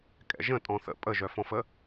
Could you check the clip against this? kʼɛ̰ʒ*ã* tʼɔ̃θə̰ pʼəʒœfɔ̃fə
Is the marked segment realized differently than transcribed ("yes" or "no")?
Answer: yes